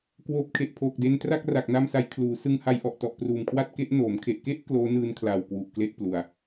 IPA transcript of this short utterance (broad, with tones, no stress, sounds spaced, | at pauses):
k w oː˨˩ p̚ kʰ e˨˩ ʔ pʰ oː˨˩ k̚ d e˧ n t r a˥˩ k̚ r a˨˩ k̚ n a˧ m s a˩˦ j kʰ l uː˩˦ s ɯ˧ ŋ h a˧ j ʔ ɔ˨˩ ʔ t ɔ˨˩ ʔ p r uː˨˩ m kʰ w a˥˩ t̚ k e˦˥ ʔ n oː˩˦ m kʰ e˨˩ ʔ k e˥˩ ʔ k l oː˦˥ n ɯː˧ n kʰ l aː˨˩ w k w u˨˩ ʔ k l e˥˩ ʔ p l u˧ a̯